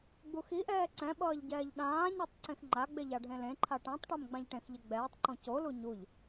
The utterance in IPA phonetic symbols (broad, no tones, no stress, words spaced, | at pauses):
ɡ͡buxiʔɛː ǀɛ̃ɓʌːʎ ɟɛːʎɗãːɲɛtˤ ǀẽxŋ͡ǃaɡ͡beʎ aɖʱẽlẽǃʰa ʈãtˤʈɛm ɡ͡bãʎʈẽxʎe ɡ͡bɛːtˤǃõ colu ɲuʎ